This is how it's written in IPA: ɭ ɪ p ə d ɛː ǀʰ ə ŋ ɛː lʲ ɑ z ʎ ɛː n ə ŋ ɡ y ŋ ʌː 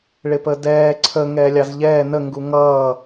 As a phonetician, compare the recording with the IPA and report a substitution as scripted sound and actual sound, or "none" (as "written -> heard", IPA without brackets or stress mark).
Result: y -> u